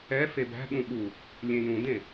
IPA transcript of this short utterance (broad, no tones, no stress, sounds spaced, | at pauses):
ɛ f e b æ̤ ɠ ũ ɠ u | lʲ ẽ j ũ d ẽ